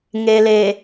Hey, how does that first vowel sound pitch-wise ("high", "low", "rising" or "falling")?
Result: low